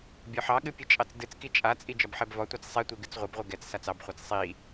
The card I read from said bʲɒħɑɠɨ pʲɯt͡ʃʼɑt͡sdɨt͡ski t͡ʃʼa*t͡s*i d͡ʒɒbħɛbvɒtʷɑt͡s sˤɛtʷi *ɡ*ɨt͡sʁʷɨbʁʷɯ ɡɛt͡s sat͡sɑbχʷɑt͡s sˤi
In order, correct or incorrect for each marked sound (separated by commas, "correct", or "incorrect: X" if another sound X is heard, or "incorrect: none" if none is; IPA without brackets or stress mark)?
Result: incorrect: t͡sʼ, correct